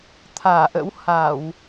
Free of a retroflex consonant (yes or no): yes